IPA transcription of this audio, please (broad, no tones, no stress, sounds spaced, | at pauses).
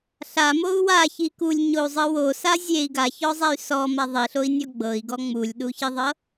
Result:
ɬ a m o u̯ w a ç i k u lʲ ɲ o u̯ zˤ ɯ w o s a zʲ e i̯ ɡ a ç ɔ zˤ ɛ y̯ s ɔ m a ðˤ i ɬ o i̯ nʲ ɔ ɡ͡b ɤ i̯ ɡ ɔ ŋ͡m u lʲ ɗ u ç i ðˤ ɤ